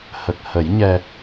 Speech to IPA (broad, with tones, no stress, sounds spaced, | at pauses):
h ə˨˩ k̚ h ə˨˩˦ j ɲ ɛ˧